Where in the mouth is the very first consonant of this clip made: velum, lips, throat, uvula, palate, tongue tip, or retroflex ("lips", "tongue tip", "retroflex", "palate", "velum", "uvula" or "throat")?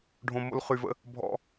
retroflex